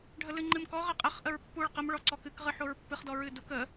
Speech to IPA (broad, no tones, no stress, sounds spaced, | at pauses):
ɖʱ ə l ɨ ŋ͡ǃ ɨ m k ɔ ʁ ə qʼ ə χ ʔ ə ɹ pː u ɭ q ə m ɭ ɔ ǀ ɔ k ɨ k ʁ ɨ ħ o ɹ pː ɨ χ d ɔ ɹ ɨ d u k ə